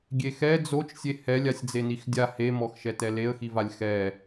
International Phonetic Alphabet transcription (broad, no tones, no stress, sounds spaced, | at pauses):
ɡʲ e x ɛ d͡z o t͡ʃ sʲ e h ɛ lʲ a sʲ d͡z e n i x dʲ a h e m ɔ x ʃ ɛ t ɛ l e ə̯ x i v a lʲ x ɛ